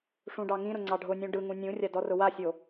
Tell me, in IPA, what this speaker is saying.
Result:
ʂũɖɑŋĩɾʊ ŋ͡ǀɑɖʱʊnʲũ ɖɯŋũ nʲũrʲa dɔrʊwasʲo

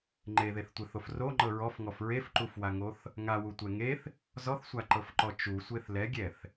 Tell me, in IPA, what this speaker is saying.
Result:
ŋ͡ǃeðeθtʷeθof roŋ͡ǃɤ ɹɔfŋɔf ɹefǃufwaŋoθ | ŋawutʷɛ ŋeθ | zɔθsʷaǃɤfǃɔ t͡ʃusʷeθ lɛɡʲɛθ

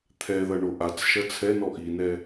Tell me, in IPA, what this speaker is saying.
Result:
t̪ʰɛðɐ ɳoʔat͡sʃɐ t͡sʰɛnɔ ʔinɛ

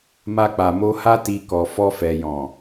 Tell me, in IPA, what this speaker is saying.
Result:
ma˧k͡pa˨mo˧ha˦ ti˧kɔ˨ fɔ˧fɛ˨jɔ̃˨

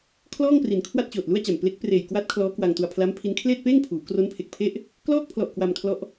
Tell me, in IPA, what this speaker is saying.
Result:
kʰlɔː˥˩ŋpri˩˦nkʰwa˥˩t̚ t͡ɕoː˨˩t̚lu˥˩a̯t͡ɕa˨˩m ple˦˥k̚preː˨˩j kwa˦˥t̚ kʰlɔː˦˥kwa˧ŋtu˧a̯ pʰla˦˥mpʰi˦˥n kʰleː˥˩t̚peː˥˩ŋpʰuː˩˦ kro˦˥npʰe˨˩k̚pʰe˥˩ʔ | klɔː˥˩k̚pʰlɔ˨˩ʔ kwa˧mkʰlɔ˦˥ʔ

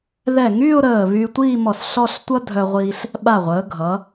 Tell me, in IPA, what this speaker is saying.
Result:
ðɛ˧˩ŋyː˥˧ʊ̯ ɾəː˧˩ βyː˧tʷiː˥˧mɔ˧˩s ɬɔ˥˧ɬ tʷʌ˥dʱœ˧ʁʷiː˧ɬ | ɓa˧˩ʁʷəː˩˧ɡʱʌ˩˧

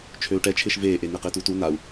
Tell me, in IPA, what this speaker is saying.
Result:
t͡ʃʰøu̯ʈɛt͡ʃʰɪːʃ veːʔe n̪eqɪːtutu nau̯

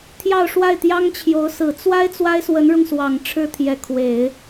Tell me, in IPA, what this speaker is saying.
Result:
t̪ʰjɑ˥˧ʊ̯ʂwa˥˩ɪ̯t̪jɑ˥ŋt͡ɕʰjo˧˥ʊ̯ sɹ̩˨˩t͡swa˥ɪ̯ t͡swa˥ɪ̯swə˧˥nɻʊ˧ŋswɑ˨˩ŋ ʈ͡ʂʰɻ̩˥t̪ʰjɛ˧˥ kʰwe˨˩˦ɪ̯

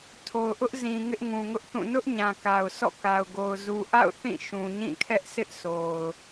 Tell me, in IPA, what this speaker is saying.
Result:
tʰo˨ʊ̯ʔʊ˦ʔzĩ˨ ŋɪ˦ʔŋũ˨ŋʊ˦ʔθũ˦˨ nʊ˦ʔ ɲã˨ka˨ʊ̯ sɔ̰˦˨ka˨ʊ̯ɡo˨ʊ̯ zu˨ʔa̰˦˨ʊ̯ θĩ˦˨ ʃũ˨ɲĩ˦˨kʰɛ˦ʔsɪ˦ʔ sʰo˨ʊ̯

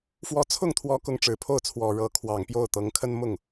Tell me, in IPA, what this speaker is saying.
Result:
fwɔ˧˥t͡sʰʊ˥˩ŋt̪ʰwɔ˧˥ kʊ˧˥ŋʈ͡ʂɻ̩˨˩pʰo˥˩ʊ̯t͡sʰwɔ˨˩ ɻɤ˧˥kʰwɑ˨˩ŋ pjo˥˩ʊ̯t̪ɤ˧˥ŋ kʰə˥nmʊ˥˩ŋ

